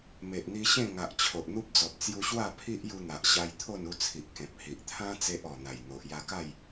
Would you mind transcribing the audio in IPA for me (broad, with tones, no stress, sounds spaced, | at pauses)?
m e˨ ʔ n̪ i˧ ɕ ẽ˥˧ ŋ a˨ ʔ t͡ɕʰ o˨ ʔ n̪ u˦ p̚ d͡z ɔ˨ p̚ t͡s j u˧ ɕ w a˥˧ pʰ i˦ ʔ j u˧ n̪ a˨ ʔ ɕ a˧ j t̪ʰ o˥˧ n u˧ t͡sʰ i˨ ʔ k ẽ˨ p̚ h i˨ ʔ t̪ʰ ã˦ t͡s e˦ ʔ ɔ˨˩ n̪ a˨˩ j n̪ o˨ ʔ j a˧ k a˥˧ j